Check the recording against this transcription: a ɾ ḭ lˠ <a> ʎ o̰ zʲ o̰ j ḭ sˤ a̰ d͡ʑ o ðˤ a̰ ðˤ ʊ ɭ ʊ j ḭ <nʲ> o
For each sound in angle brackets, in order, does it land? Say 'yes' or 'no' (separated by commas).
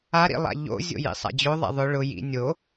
no, yes